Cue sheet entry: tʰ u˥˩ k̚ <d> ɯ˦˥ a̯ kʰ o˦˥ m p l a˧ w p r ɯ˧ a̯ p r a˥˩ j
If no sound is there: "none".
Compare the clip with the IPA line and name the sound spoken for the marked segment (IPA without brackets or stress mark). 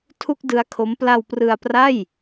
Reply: d